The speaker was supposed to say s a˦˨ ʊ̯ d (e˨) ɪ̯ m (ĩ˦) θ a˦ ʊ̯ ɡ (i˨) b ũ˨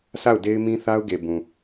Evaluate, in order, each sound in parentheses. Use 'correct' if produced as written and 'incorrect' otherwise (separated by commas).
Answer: incorrect, correct, incorrect